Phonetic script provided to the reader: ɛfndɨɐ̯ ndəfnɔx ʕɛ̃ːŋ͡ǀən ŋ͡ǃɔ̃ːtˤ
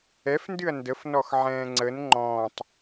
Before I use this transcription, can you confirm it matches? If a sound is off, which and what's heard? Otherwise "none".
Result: none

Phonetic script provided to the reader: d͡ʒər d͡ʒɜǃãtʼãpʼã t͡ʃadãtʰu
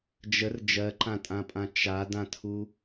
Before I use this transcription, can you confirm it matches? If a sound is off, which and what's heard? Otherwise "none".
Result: none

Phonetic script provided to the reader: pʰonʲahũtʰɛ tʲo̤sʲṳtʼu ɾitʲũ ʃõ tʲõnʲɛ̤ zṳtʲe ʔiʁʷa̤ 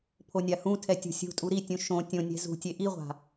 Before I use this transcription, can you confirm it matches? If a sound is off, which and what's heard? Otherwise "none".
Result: none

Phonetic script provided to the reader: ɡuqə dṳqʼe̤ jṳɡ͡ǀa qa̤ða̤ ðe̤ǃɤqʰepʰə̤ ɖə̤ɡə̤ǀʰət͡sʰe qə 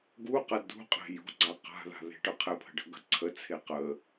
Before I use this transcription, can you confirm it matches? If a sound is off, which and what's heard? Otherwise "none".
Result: ǃ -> ʈ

